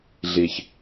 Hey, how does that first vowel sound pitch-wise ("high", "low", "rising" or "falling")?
low